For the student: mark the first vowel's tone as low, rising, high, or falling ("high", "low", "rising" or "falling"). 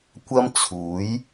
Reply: high